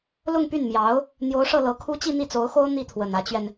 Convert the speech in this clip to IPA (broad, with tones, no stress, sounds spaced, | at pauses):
l ʊ˥˧ ŋ p y˥˩ n m j ɑ˧˥ ʊ̯ | n̪ j o˧˥ ʊ̯ ʂ ɤ˥˩ l ɤ˧˥ kʰ u˥ t͡ɕ i˥˧ n̪ i˥˩ t͡s o˧˥ ʊ̯ x o˥ ʊ̯ n̪ i˥˩ t̪ʰ w ə˨˩ n ä˧˥ t͡ɕ ɥ ɛ˧ n